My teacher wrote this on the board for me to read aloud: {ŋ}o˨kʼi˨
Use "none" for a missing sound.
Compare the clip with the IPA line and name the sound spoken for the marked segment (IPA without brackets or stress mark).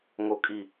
ŋ